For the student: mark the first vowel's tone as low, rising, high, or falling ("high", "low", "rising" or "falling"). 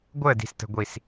falling